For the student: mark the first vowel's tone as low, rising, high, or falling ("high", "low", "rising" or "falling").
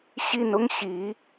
falling